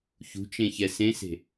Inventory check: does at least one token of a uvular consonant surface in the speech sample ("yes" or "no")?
no